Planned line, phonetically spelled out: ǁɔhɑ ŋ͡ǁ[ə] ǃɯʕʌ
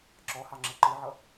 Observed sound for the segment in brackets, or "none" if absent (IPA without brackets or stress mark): ə